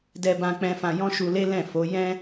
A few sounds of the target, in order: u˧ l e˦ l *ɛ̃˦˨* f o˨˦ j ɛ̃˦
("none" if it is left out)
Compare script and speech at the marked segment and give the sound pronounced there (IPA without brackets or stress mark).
ɛ̃˦˨